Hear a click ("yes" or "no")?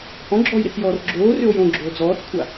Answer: yes